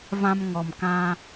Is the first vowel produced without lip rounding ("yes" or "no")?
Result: yes